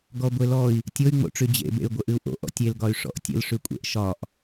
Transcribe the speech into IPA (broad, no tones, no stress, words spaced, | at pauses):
ɡɔɡʷelɔi̯ | tʲoy̯ŋ͡mo̰ʈ͡ʂy d͡ʑḛbḛy̯ɡʷə ʔɨu̯ʔo̰ ʔɔ̰tʲelɡɒy̯ ʂɔ̰ʔtʲə̰lʂykʷʼḛʔ ʃɒʔ